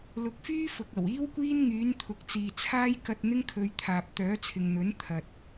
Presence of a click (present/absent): absent